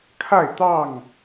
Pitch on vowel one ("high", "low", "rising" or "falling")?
falling